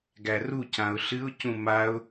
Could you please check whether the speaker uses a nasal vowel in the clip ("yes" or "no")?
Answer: yes